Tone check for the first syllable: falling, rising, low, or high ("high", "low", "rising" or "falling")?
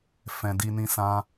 low